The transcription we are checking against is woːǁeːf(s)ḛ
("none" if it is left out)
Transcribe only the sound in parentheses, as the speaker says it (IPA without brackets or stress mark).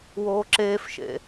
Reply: ʃ